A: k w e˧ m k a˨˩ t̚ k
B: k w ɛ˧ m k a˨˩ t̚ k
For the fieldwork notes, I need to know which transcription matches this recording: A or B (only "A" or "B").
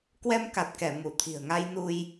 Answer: B